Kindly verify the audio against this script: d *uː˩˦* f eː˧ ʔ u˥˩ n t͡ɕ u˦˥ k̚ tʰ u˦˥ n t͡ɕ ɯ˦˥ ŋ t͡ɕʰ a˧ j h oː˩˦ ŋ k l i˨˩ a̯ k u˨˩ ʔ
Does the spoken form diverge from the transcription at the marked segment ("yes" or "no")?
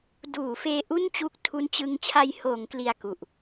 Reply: no